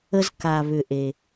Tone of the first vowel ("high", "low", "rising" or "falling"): low